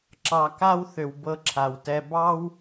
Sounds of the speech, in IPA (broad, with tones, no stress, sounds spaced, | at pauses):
ǁ ɑ˨ k a˥ w θ ʏ˩ w b ɤ˨ ǁʰ a˩ w t ɛ˨ b ɑ˥ w